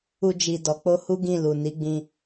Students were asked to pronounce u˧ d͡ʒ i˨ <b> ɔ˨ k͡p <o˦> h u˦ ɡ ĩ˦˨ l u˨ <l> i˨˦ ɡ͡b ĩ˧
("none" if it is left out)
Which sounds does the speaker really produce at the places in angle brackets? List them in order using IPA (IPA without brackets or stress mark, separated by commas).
d, o˧, n